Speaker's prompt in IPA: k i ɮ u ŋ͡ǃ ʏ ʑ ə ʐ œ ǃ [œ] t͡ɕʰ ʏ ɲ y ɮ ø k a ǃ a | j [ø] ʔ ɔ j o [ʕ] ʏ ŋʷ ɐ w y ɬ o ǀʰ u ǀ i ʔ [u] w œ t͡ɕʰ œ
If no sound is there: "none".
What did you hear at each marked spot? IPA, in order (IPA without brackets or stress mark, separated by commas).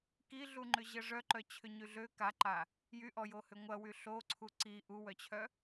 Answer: œ, y, h, u